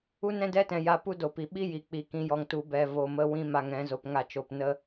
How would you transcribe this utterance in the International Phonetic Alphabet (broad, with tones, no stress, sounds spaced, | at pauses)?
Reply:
u˦ n ɛ̃˦ d ɛ˦ t ɛ̃˨ j a˧ p u˦ d o˨ p i˨ ɓ i˦ j i˨ k͡p i˨˦ k ĩ˧ j ɔ˧ ŋ t u˧ b ɛ˨ v o˨ m ə˧ w ĩ˦ m a˧ ŋ ɛ̃˨˦ z o˨ p ŋ a˦˨ t͡ʃ o˧ p n ə˦